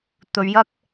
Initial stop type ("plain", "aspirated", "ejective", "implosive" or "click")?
plain